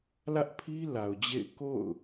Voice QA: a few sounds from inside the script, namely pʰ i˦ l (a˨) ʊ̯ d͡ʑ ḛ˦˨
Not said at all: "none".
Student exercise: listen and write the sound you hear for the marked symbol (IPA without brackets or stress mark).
a˨